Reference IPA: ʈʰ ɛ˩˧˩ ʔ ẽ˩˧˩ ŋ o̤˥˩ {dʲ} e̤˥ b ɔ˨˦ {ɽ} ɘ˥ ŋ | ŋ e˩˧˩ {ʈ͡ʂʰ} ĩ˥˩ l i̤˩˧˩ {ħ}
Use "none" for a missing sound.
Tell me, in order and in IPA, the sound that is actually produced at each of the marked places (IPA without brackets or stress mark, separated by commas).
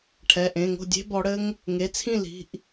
dʲ, ɽ, t͡sʰ, ʔ